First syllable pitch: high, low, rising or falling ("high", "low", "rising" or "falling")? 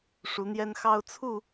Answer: rising